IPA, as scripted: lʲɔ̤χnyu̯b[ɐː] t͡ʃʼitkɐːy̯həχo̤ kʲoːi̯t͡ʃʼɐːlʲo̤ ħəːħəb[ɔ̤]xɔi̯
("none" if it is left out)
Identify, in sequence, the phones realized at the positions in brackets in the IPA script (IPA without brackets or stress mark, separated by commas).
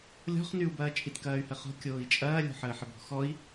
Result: ɐː, ɔ̤